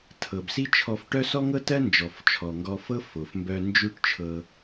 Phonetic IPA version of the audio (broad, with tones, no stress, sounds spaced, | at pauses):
tʰ ɤ˩ b s i˥ t͡ʃʰ ɔ˧ f ʈ œ˥ s ɔ˥ ŋ ɤ˥ t ɜ˥ n d͡ʒ ɔ˩ f t͡ʃʰ ɔ˩ ŋ ɡ ɔ˧ f ɤ˥ f o˩ f m b œ˧ n d͡ʒ ʉ˥ ʈ t͡ʃʰ ɤ˧